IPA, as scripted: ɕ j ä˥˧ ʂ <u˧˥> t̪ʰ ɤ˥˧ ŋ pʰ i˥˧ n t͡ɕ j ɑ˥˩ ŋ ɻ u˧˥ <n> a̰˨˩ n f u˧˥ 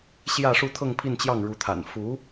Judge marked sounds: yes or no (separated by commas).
no, no